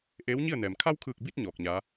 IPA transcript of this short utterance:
ʔeː˧˥wɲi˥˨ə̯nɛː˩m kʰa˧wkʰɯː˧˩k̚bi˧t̚ ɲɔː˧˩k̚ɲa˧˥

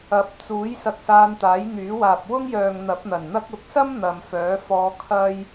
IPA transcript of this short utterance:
ɐ˨˥p̚t͡suː˨˥j sɐ˧k̚saː˧nt̪aː˨˥j n̪yː˨˥waː˨p̚ wʊ˥ŋjœː˨ŋ n̪ɐ˨˥p̚n̪ɐ˨˩nn̪ɐ˥k̚ ʊ˨˥k̚sɐ˥m n̪ɐ˨mfœː˨˥fɔː˧ kʰɐ˥j

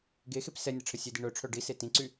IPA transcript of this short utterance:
ɡexep sɛnʲəʈ͡ʂʰə sʲedi ɳœʈ͡ʂʰœ ɖise tĩǀy

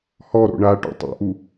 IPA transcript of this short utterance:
hɔɾo̰ ɳaʈo̰ tˤo̰ʔu

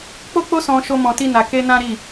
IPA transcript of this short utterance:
k͡po˦k͡po˦sɔ̃˧ ʃo˦mɔ̃˧ti˦na˧ ke˦nã˦ɾi˦˨

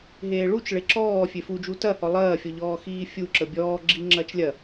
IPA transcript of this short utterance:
ɦeːɭut͡ʃ ɭeǁɔː fʲefud͡ʒu tɐhɔ lˠɐːfʲɔʎɔː xiːfʲuǁə bʲɔːɡ͡ǁi ŋ͡ǁɐt͡ʃlʲɐ

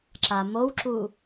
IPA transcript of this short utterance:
ǁamowǁu

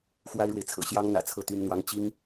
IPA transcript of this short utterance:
xwa˥ɪ̯ɻwe˨ɪ̯t͡sʰɤ̰˨˩ ɕjɑ˥ŋn̪ä̰˨˩t͡sʰɤ˥˩ t̪y˥nn̪wɑ˥ŋ t͡ɕi˥ŋ

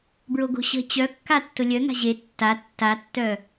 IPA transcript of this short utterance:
bɹoɡo̤ɕə̤ t͡ɕœkːa tːʊlʲœ ŋa̤ʑe tːa tːatːœ

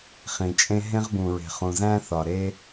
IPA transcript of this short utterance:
χĩ˩t͡ʃʼẽ˧ ɦẽ˧ʁbũ˩ɹe̤˩ χũ˩zæ̃˧θɒ˩ɾe˧

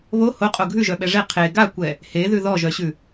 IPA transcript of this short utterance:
βo hoqʼo ɡʱʉʒœɓɛ ʐe qʰe ɡakʷɛ | heðʉ ðɔʒœɕʉ

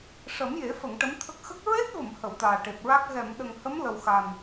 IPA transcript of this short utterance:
ʂə˨˩˦mje˨˩˦fə˨˩˨ŋ ʈə˧˥mt̪ʰə˦˥k̚ xə˦˥k̚ ɹe˦˥t̚və˨˩˨m hə˨˩˨wt̪aː˨˩ʈe˨˩p̚ɹa˦˥k̚ ɣɛ˨˩˨mɗə˨˩ŋhə˧˥m lə˨˩wxa˨˩n

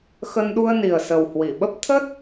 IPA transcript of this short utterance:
xə˧nɗu˧ə̯ni˨˩ə̯sə˨˩w hwi˧˩ɓə˦˥p̚ t̪ʰə˦˥t̚

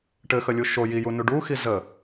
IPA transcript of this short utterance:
ʈɘxəlʲu ʃo jijunu ɖu xizə

